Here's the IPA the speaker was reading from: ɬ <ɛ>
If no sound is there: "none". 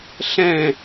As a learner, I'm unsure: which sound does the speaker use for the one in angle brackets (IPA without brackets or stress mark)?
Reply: ɛ̃